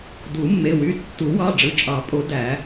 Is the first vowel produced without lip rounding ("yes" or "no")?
no